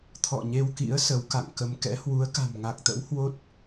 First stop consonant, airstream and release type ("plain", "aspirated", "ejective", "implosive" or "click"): aspirated